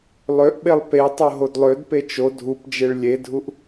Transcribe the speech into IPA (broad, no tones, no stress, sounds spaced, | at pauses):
lˠ ø ʔ ɓ e lˠ p e tˤ o ɦ o d lˠ ø d p e t͡ʃ o dʱ u p d͡ʒ e ɭ lʲ e dʱ u ʔ